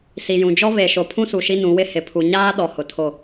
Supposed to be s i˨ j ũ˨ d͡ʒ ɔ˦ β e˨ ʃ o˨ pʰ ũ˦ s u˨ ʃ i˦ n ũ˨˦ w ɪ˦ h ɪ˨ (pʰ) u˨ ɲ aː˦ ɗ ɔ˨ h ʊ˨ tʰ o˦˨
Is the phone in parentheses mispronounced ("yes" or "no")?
no